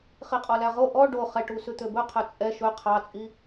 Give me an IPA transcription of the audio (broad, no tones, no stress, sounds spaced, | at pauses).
χ i qʼ ɔ l æ ʁ o ʔ ɔ ɖ o χ ɛ ʈ u s ʉ t̪ ø b ɵ qʰ œ t͡sʼ ɛ ʃ ɵ qʰ ɑ t͡sʼ i